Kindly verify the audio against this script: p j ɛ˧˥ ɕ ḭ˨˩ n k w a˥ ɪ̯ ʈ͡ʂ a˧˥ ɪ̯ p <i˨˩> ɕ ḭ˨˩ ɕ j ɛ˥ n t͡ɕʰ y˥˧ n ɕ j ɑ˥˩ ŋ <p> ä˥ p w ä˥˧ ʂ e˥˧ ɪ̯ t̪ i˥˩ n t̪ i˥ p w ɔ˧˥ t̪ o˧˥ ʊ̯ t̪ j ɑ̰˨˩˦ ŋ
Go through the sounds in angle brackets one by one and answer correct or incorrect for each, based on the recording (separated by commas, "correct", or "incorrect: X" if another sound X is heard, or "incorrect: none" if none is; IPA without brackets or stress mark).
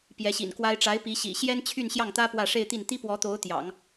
incorrect: i˧˥, incorrect: t̪